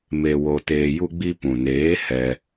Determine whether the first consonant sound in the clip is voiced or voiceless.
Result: voiced